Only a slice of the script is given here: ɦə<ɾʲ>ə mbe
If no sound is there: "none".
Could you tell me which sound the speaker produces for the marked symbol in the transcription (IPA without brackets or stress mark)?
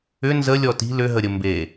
ɾʲ